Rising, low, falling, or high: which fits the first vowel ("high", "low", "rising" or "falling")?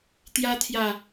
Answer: high